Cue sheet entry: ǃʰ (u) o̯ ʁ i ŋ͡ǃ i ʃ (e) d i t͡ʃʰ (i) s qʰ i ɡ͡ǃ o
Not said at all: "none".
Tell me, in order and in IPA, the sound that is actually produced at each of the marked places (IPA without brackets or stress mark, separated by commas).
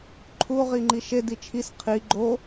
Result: u, e, i